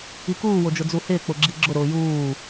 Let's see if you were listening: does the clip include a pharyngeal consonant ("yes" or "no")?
no